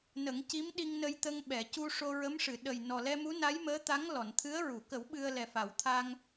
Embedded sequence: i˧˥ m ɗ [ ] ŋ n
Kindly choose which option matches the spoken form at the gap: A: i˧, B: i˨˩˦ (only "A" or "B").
A